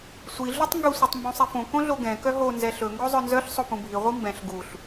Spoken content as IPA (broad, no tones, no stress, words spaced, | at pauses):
sʷi ɮutˤŋɡɵ sʷœtˤmbũsˤifõ kõɮoɡɛ̃ kœɦo nzɛɬɵ ŋɡozˤœnzœɬ sˤopũbʱi ʁʷimbɛ̃ɬ ɡuɬ